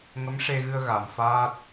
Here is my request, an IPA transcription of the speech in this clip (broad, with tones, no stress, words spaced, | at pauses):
ŋə˧˥mʂe˧ɣɨ˧ə̯ ɣa˨˩˨mfaː˦˥t̚